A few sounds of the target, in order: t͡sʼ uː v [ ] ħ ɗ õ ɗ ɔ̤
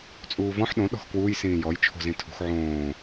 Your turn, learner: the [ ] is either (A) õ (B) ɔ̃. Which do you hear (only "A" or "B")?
B